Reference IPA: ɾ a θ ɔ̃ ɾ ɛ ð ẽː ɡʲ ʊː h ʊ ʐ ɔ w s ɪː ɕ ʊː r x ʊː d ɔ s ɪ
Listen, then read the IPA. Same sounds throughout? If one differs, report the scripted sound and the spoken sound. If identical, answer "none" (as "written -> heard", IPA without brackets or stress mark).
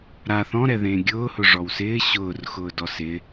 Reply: none